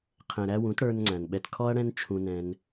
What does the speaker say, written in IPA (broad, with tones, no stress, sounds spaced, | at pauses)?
qʰ ɛ̃˨ ɾ æ˧ w ũ˨˦ t ɽ ə˞˧ n ŋ͡ǀ æ̃˨ n ɓ ɛ˧ t kʰ ɔ˦ ɐ̯ ɽ ɛ̃˦ n t͡ʃʰ ũ˧ n ɛ̃˧ n